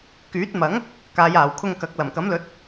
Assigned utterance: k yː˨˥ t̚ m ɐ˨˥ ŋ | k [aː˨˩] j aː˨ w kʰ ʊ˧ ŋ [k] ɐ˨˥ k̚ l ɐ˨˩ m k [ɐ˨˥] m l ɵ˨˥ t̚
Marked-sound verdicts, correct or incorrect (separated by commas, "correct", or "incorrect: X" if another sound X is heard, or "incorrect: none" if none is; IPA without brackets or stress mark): incorrect: aː˨˧, correct, correct